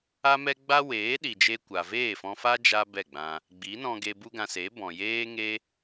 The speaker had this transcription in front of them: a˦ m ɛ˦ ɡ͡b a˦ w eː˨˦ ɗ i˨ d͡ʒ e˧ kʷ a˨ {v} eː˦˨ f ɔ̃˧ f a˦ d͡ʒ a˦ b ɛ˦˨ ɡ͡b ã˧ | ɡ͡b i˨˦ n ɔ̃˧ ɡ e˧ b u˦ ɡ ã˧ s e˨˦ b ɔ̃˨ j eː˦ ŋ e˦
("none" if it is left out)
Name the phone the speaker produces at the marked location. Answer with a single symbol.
v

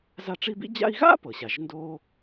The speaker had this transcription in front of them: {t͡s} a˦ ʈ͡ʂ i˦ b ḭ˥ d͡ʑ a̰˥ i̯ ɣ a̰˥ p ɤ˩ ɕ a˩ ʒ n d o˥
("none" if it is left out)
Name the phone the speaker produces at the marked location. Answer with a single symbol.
z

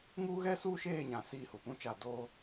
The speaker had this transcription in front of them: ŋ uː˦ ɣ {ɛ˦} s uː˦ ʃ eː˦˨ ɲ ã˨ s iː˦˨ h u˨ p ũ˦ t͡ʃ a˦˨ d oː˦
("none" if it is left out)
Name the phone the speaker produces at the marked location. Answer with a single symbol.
ɛ˦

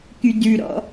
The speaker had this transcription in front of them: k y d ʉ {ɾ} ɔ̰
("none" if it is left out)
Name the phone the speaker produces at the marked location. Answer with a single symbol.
ɾ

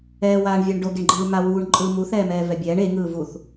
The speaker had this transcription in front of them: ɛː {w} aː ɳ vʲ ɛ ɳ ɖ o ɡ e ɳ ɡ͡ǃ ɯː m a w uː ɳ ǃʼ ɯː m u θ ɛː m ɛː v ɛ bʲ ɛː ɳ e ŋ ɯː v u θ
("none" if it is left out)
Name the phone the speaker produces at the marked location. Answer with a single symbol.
w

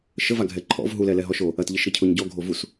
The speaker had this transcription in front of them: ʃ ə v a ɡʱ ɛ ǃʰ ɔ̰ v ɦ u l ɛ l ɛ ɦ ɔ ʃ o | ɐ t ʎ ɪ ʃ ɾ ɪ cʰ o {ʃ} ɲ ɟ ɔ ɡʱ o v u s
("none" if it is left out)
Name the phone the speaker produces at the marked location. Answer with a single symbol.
none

